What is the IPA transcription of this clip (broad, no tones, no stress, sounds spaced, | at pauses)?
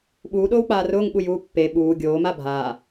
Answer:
ɓ uː ɗ oː w k͡p aː r ʊː ŋ ɓ u j uː pː e ɓ uː ɡʲ oː m a bʱ aː